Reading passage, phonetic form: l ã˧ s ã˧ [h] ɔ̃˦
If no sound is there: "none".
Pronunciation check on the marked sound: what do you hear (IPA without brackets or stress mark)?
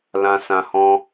h